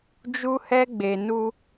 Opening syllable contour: high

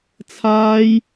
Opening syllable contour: high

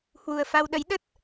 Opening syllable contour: low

